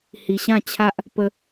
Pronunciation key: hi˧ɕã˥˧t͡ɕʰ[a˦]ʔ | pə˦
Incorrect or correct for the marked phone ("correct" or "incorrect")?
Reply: correct